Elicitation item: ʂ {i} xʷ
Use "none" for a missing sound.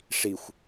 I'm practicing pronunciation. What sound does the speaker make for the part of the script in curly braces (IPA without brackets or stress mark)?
i